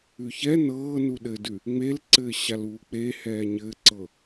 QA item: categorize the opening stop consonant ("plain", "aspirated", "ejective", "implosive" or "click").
implosive